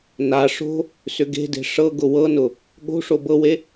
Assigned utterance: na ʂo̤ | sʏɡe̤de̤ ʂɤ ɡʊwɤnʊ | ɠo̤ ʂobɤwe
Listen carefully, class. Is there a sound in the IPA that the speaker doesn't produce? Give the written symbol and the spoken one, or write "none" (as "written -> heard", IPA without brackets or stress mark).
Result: none